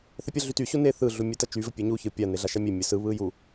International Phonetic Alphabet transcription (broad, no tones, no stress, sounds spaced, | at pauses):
θ ɛ pʲ ɐ ɮ y t y ɕ u n e θ ɯ ɮ u mʲ ɛ t ɐ t͡ʃ y v ɘ pʲ e ɲ u ç ɯ pʲ a n e ɮ a ʃ a mʲ e mʲ ɘ s ɯ β ɯ j u